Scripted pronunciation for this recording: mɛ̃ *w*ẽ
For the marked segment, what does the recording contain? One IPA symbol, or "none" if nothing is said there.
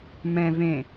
v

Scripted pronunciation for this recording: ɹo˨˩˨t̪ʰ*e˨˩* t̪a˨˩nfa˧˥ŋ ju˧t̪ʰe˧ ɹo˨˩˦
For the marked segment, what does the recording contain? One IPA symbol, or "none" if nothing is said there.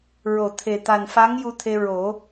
e˨˩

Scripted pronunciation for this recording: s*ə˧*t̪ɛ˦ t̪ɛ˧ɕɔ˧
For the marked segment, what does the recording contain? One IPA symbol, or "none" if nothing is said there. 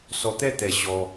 ɔ˧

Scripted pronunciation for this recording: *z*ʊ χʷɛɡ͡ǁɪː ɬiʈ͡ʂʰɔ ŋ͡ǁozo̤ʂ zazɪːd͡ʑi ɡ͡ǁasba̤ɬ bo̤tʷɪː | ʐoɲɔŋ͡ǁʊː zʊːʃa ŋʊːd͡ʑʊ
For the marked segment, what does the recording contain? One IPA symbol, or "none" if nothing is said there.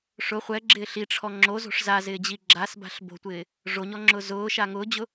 ʂ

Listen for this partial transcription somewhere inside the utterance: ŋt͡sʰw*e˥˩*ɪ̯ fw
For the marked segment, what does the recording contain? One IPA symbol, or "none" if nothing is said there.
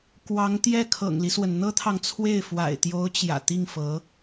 e˥˩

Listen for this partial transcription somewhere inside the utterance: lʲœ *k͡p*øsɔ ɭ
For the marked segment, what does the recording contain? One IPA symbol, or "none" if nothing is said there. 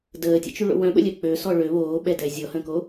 k͡p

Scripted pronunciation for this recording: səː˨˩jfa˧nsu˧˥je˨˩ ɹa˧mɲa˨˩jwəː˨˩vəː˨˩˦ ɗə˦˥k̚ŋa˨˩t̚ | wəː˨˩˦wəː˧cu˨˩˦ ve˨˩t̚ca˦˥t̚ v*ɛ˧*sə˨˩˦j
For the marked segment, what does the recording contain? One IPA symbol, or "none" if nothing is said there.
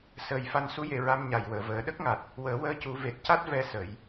ɛ˧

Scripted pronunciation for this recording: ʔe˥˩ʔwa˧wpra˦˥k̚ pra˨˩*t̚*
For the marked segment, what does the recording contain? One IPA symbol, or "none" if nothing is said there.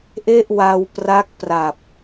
p̚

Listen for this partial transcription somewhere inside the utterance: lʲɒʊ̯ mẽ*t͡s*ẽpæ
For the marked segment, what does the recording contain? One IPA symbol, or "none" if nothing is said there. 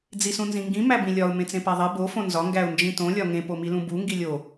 t͡s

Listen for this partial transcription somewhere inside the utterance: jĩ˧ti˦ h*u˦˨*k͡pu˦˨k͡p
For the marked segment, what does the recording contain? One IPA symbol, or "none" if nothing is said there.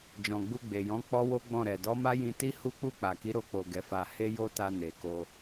u˦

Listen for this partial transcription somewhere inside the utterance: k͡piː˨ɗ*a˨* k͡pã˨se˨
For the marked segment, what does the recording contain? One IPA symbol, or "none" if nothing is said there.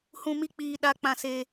a˨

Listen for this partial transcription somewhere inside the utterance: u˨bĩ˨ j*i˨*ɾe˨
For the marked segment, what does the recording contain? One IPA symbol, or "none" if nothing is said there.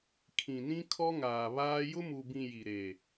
i˨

